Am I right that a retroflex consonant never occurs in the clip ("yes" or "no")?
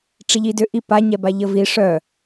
no